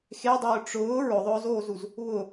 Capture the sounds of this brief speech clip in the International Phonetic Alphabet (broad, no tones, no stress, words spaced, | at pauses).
xedˤʊː ʈ͡ʂʊː ɹʊðˤʊːzoːzuz | βʊ